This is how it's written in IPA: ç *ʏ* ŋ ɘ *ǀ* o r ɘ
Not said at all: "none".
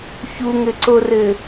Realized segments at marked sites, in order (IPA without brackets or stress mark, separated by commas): u, ǀ